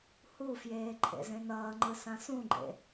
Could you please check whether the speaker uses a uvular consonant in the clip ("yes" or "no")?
no